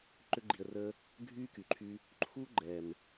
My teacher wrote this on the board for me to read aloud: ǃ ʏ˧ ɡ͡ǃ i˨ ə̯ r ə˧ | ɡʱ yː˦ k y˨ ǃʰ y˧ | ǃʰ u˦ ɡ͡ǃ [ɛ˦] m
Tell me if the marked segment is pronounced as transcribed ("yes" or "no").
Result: no